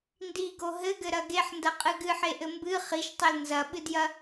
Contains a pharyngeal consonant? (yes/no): yes